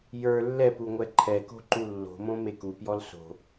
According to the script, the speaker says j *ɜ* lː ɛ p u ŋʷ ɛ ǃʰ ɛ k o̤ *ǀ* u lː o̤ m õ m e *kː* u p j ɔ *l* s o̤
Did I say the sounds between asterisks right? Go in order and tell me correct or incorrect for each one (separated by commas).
incorrect, incorrect, incorrect, correct